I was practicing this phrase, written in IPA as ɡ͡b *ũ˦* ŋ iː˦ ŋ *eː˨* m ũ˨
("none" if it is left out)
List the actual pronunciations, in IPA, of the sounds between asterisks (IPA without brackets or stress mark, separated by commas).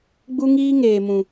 u˦, eː˨